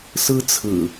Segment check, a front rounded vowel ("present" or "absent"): absent